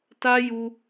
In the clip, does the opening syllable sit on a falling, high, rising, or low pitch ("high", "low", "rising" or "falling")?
high